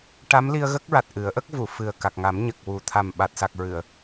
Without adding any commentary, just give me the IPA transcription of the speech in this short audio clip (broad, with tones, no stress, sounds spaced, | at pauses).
ʈ a˧˥ m l i˧ ə̯ ɣ ə˦˥ k̚ ɹ a˨˩ t̚ ʔ ɨ˨˩˦ ə̯ ʔ ə˦˥ k̚ v u˨˩˨ f ɨ˨˩ ə̯ k a˨˩ k̚ ŋ a˨˩˦ m ɲ ə˨˩ k̚ w u˨˩ t̪ʰ a˨˩ m ɓ a˨˩ t̚ s a˨˩ k̚ ɹ ɨ˨˩˨ ə̯